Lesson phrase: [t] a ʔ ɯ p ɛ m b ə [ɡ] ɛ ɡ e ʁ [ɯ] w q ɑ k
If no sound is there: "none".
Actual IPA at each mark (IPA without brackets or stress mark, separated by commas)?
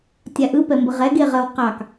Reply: tʲ, ʁ, ə